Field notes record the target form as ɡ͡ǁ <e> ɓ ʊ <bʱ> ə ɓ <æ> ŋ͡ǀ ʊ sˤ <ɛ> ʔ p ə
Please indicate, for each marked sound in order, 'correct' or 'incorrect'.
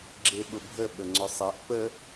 correct, correct, incorrect, correct

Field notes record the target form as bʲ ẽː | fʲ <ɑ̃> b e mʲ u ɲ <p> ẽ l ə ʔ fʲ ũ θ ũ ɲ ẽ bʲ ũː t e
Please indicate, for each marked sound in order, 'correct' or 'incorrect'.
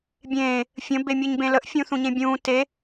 incorrect, incorrect

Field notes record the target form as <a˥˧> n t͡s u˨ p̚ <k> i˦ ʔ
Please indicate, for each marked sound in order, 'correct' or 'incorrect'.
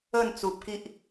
incorrect, correct

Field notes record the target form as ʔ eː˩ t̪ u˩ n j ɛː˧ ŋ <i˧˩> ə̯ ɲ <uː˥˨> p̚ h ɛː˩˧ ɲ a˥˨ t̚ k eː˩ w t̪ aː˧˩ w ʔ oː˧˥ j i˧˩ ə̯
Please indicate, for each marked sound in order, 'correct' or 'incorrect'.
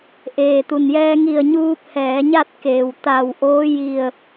correct, incorrect

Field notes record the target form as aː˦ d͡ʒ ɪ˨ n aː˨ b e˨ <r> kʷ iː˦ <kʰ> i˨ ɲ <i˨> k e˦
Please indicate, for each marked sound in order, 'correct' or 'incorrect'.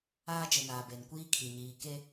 incorrect, correct, incorrect

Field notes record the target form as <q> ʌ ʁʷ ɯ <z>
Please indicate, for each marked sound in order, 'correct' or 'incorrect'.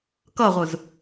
incorrect, correct

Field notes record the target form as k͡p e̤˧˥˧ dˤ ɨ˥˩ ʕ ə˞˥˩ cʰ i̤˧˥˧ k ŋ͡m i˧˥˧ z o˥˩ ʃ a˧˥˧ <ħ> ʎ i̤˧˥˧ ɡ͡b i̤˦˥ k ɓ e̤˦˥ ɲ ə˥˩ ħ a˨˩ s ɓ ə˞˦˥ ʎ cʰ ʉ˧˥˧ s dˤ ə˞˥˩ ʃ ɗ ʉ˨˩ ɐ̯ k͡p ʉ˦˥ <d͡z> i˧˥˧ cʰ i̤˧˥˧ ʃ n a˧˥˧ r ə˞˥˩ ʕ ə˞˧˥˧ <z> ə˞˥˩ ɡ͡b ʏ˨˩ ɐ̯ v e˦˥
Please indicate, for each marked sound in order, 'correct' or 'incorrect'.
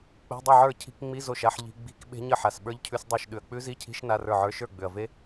correct, incorrect, incorrect

